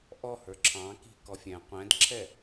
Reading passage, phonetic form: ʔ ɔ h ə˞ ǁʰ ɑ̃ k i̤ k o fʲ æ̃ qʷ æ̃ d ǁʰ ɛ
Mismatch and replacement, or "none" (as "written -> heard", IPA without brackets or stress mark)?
o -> ɔ